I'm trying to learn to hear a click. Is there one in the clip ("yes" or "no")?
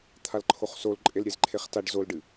yes